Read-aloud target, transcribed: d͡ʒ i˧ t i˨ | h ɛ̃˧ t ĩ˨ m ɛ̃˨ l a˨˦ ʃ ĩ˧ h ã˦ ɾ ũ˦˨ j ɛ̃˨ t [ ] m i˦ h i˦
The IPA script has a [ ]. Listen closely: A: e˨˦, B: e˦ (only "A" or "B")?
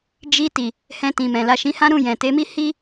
A